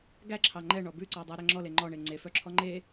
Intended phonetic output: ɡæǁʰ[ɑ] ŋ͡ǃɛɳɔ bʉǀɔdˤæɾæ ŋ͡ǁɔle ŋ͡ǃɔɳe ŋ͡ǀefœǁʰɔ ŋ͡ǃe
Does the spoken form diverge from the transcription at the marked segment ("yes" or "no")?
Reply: no